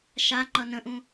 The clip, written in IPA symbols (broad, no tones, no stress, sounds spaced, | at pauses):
ʃ a ŋ͡ǃ ʌ n ə̃ ʔ ũ